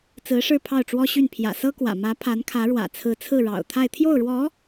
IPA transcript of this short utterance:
t͡s ɹ̩˧˥ ʂ ɻ̩˥˧ pʰ ɑ˥˩ ʊ̯ ʈ͡ʂ w ɔ˥ ɕ y˥˩ n pʰ j ä̰˨˩ s ɤ˥ k w ä̰˨˩ m ä˧˥ pʰ a˧˥ n kʰ ä˧˥ ɻ w ä̰˨˩ t͡sʰ ɹ̩˧˥ t͡sʰ ɹ̩˥˩ ɻ ɑ̰˨˩ ʊ̯ t̪ʰ a˥˧ ɪ̯ t̪ʰ j o˥˩ ʊ̯ ɻ w ɔ˧˥

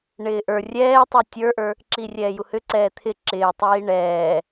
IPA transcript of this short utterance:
ɳ ɪː ʔ ə˞ rʲ ɛː tˤ u tʲ ə˞ ʔ ə˞ | ǁ iː rʲ ɛː j u h ʏ ǀ ɛː t̪ʰ ɪ ǁ ɪː tˤ iː ɳ ɛː

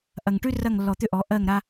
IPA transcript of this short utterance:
ʔ ɐ˨ ŋ ʈ ʉ˦ r ɐ˦˨ ŋ lː ɔ˨ t̪ ʏ˦ ʔ ɔ˨˦ ʔ ɜ˦˨ ŋ ɾ a˦

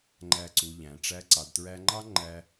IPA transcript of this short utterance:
ŋ͡ǃ æ˧ ǀ u˨ ʎ æ̃˨ ʈ͡ʂ æ˧ ǀ ɑ˨ d t ɹ æ˧ ŋ͡ǃ ɑ˦ ŋ͡ǃ æ˧

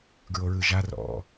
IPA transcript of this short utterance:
ɡ ɹ o ɹ ɯ ʒ a r ɔ̰

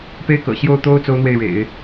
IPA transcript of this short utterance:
p e˥ ɪ̯ k ɤ̰˨˩ ɕ j o˥˩ ʊ̯ t̪ o˥ ʊ̯ t͡s o˥ ʊ̯ n̪ w e˥˩ ɪ̯ ɻ ḛ˨˩˦ ɪ̯

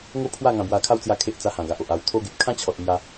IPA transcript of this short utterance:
ŋ o˥˧ pʰ w a˥˧ ŋ ã˧ b w a˧ kʰ a˦ w t͡s j a˧ kʰ e˦ ʔ t͡s a˧ h ã˨˩ ɡ a˨ ʔ o˨ ʔ a˧ w t̪ʰ o˧ ɡ e˨ p̚ kʰ ã˦ t͡ɕʰ ɔ˨ t̚ n̪ j a˧

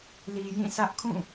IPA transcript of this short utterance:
l i˨ j ĩ˦˨ s ä˦ ʔ kʰ ũ˦˨

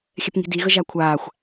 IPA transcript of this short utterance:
xʲ ɛ p ŋ i̤ d i ɣ ə ʒ a kʷʰ aː xʷ

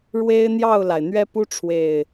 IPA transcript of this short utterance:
ɻ w e˦ ɪ̯ n̪ j ɑ˥˨ ʊ̯ l a˩ ɪ̯ n̪ ɥ ɛ˦ p u˦ ʈ͡ʂʰ w e˨˩ ɪ̯

